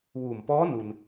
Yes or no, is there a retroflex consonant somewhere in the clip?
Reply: no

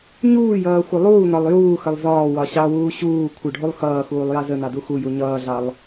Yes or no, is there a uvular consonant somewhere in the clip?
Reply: no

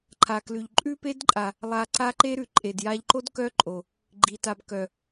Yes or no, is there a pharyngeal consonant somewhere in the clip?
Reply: no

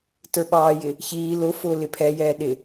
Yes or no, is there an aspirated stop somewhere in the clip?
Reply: yes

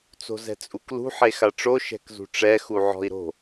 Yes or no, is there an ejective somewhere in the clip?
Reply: yes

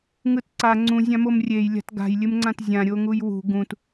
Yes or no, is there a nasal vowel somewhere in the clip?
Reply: yes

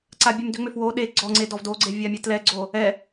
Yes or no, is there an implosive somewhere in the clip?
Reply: yes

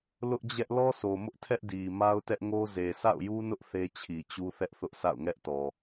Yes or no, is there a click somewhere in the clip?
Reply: no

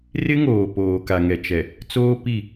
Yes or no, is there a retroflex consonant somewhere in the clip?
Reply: no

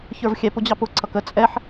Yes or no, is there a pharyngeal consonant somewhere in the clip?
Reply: yes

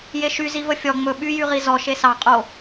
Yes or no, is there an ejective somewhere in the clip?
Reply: yes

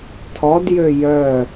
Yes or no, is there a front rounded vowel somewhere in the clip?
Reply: yes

